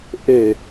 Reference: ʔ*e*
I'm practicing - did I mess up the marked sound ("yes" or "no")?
no